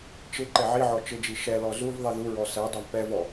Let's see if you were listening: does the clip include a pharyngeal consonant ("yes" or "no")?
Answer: yes